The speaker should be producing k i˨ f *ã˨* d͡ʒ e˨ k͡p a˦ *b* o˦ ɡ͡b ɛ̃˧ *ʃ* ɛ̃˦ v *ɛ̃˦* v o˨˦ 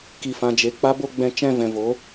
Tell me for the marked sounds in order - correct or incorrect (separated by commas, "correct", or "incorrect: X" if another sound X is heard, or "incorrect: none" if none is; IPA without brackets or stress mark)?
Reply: correct, correct, incorrect: t͡ʃ, incorrect: ɛ̃˨